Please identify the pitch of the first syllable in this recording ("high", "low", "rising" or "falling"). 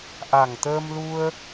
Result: low